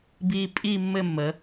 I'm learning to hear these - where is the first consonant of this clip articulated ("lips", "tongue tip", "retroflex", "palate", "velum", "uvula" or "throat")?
lips